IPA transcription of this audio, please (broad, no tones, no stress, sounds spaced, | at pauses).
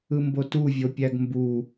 ɯ m b o t u vʲ o pʲ æ ɡ m b u